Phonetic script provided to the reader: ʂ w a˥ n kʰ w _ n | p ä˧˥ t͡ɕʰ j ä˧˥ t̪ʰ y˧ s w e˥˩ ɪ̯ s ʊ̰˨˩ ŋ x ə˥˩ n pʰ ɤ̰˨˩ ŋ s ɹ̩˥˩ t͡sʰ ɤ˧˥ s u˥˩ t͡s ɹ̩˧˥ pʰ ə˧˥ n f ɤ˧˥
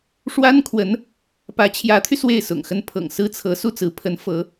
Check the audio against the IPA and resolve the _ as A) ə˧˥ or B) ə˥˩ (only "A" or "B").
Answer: A